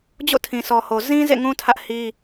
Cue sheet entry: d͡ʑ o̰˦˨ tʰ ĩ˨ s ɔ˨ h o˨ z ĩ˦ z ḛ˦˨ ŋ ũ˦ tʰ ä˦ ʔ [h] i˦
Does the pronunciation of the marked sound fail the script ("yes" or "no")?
no